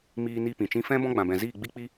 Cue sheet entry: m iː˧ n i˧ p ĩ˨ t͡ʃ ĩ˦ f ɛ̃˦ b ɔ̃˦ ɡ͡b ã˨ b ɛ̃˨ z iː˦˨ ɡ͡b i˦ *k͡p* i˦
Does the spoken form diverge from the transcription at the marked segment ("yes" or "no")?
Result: no